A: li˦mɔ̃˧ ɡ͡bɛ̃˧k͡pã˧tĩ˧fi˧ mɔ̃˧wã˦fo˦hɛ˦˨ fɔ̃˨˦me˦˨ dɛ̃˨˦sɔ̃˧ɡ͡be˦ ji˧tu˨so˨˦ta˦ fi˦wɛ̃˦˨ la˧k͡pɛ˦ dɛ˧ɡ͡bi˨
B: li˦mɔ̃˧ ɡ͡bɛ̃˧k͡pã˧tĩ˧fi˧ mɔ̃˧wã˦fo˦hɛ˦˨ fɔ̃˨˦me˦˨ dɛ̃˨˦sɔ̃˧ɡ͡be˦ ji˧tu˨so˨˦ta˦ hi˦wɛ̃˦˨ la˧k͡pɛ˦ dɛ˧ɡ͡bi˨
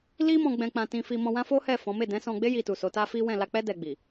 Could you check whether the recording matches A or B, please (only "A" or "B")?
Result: A